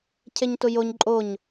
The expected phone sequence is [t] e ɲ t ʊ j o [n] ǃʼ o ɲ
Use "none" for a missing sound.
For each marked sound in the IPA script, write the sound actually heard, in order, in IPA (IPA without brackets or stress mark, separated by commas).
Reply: cʰ, ɲ